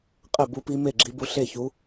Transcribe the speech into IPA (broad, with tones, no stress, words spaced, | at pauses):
qʼɛ˥˩bu˧˥pi˧˥ me˥˩ɡ͡ǁi˧˥bu˧˥ ɬe˥˩çu˧˥